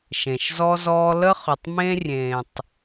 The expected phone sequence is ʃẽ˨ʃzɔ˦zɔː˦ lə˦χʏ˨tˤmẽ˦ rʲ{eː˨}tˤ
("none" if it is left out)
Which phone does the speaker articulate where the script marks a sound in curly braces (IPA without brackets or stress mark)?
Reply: ẽː˨